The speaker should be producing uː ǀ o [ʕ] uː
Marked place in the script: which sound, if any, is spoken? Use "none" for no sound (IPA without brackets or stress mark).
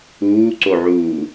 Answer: ʕ